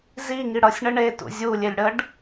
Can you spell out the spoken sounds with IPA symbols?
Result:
z i ŋ i ɽ ʌ sʲ ɳ ə ɳ e t ṵ zʲ u lʲ e lʲ ɽ ə ɖ

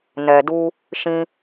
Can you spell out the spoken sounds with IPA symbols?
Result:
n ɛ˨ d u˧ | ʃ ĩ˧

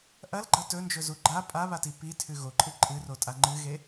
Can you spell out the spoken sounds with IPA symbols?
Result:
ʔ ɐ l ɡ͡ǃ ɐ t ɵ n d͡ʒ ɵ z u ɡ͡ǃ a pʼ a β a t i p i tʰ ʉ ɣ o ǃʼ ɨ ǃʼ ɨ r o tʼ a ŋ͡ǃ ɨ ɣ e

